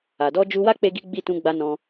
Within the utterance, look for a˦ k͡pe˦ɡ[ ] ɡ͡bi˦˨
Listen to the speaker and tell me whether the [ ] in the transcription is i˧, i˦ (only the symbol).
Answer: i˦